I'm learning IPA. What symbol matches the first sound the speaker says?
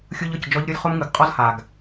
xʲ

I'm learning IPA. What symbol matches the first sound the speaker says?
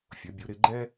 fʲ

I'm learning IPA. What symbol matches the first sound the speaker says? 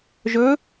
ʒ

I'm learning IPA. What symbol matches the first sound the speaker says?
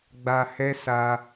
ɡ͡b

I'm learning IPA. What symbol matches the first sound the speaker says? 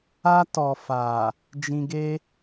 a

